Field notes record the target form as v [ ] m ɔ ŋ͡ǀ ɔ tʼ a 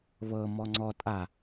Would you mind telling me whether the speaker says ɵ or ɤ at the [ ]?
ɤ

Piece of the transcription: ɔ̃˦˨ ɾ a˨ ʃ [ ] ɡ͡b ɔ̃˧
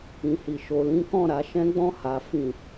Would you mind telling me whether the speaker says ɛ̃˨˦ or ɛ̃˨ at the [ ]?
ɛ̃˨˦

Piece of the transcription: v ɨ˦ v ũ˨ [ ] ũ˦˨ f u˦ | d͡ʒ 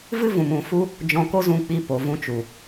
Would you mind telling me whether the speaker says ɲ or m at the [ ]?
m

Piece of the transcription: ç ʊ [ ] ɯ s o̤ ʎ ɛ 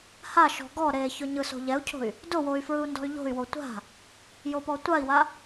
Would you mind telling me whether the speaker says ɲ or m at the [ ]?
ɲ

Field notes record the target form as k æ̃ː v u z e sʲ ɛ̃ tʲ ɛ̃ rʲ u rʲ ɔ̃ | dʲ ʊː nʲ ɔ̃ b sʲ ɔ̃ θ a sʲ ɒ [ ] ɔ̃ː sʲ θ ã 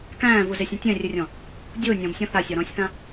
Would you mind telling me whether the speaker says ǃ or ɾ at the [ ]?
ɾ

